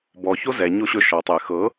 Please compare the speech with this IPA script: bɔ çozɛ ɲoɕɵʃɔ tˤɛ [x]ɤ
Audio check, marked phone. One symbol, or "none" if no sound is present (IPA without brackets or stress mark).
x